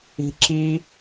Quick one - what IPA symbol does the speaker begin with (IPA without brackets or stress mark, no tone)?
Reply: i̤